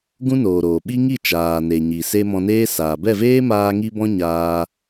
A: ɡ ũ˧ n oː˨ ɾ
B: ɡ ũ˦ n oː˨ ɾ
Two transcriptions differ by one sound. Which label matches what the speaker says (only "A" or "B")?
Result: B